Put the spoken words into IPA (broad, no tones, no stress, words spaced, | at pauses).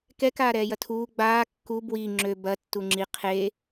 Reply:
kɛkaːɾɛːjɐ tʰuː ɡ͡baː kːu bwi ŋ͡ǁø bɐ tːuŋ͡ǁi qʰe